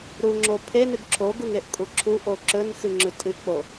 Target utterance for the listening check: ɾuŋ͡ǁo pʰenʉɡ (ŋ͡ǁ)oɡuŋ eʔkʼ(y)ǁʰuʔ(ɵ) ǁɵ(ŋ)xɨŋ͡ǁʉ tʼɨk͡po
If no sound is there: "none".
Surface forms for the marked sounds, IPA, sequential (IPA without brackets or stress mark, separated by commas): ǁʰ, u, o, n